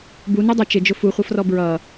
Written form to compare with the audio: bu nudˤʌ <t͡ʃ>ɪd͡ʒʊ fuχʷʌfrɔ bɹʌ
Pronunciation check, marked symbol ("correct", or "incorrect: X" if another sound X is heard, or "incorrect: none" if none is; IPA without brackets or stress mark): correct